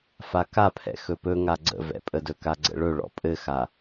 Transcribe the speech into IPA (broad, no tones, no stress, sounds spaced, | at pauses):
f a k a pʰ ɛ̰ x ɵ p ɵ ŋ a ɡ͡ǀ ə̰ v ɛ̰ pʼ ə d ɵ k a ɡ͡ǀ ə̰ ɭ ɵ ɭ ɔ̰ pʼ ɘ x a